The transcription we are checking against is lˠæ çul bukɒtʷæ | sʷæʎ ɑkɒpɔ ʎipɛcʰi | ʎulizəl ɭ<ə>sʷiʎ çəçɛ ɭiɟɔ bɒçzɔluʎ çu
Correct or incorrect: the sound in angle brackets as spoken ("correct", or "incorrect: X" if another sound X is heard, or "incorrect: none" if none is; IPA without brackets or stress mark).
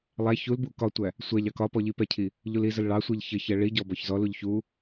incorrect: ɑ